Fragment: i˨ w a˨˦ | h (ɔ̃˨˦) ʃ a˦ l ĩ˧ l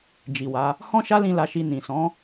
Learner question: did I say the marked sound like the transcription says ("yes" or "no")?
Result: no